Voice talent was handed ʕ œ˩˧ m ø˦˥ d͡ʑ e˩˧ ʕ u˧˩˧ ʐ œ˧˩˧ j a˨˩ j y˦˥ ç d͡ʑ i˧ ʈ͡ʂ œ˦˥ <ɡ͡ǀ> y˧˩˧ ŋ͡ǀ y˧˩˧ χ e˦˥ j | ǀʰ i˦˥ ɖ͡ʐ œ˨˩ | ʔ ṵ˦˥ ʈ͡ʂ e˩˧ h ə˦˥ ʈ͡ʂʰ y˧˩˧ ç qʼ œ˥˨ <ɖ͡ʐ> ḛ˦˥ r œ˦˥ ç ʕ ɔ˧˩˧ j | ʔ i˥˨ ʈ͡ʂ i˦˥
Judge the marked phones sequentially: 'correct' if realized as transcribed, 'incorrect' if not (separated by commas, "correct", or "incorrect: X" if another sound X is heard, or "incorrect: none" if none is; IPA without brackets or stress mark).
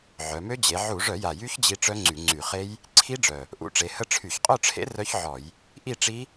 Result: incorrect: ŋ͡ǀ, incorrect: ʈ͡ʂʰ